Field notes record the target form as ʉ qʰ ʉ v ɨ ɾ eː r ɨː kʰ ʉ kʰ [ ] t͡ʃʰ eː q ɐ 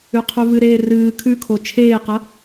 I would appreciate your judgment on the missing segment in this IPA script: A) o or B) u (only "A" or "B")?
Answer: A